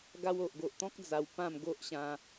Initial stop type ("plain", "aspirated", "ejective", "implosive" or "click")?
plain